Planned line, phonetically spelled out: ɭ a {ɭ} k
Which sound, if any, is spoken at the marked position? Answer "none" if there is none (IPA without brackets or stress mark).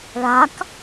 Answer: none